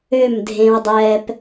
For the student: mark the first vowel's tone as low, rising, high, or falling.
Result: falling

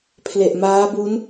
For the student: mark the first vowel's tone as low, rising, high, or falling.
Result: low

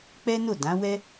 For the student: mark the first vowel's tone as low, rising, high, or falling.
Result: high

